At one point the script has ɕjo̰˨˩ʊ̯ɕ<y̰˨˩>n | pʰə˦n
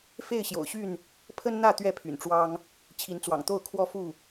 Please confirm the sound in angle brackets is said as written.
no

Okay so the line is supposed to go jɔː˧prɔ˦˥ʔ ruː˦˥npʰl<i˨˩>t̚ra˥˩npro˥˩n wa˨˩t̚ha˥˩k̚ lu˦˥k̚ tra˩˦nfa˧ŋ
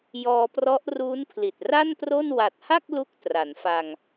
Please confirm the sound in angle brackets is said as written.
yes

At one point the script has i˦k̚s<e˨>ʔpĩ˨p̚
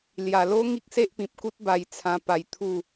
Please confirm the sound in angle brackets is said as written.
no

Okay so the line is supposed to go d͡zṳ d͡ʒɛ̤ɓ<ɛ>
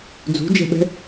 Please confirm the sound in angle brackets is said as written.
no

